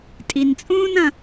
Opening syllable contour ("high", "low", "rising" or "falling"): low